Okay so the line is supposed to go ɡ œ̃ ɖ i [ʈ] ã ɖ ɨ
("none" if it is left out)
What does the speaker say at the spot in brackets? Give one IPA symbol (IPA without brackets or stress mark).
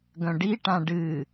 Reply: ʈ